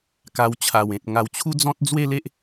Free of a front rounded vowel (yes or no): yes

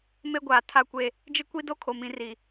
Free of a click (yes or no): yes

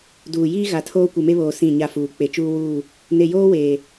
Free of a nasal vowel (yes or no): no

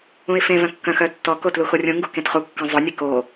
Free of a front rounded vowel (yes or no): no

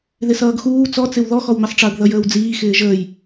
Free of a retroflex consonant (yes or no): no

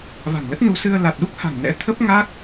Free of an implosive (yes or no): no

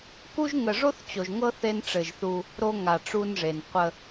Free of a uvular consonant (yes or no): no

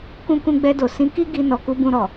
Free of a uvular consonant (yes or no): yes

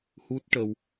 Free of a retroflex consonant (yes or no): no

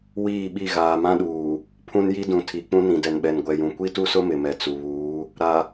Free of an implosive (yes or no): no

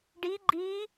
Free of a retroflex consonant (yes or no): no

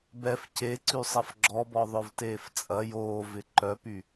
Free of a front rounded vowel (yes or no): no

